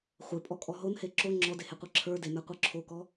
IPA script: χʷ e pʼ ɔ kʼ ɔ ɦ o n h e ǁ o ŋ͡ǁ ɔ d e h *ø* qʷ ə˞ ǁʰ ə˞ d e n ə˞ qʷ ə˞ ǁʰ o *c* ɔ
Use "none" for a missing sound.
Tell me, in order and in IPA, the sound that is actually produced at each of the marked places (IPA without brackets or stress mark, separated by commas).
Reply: e, k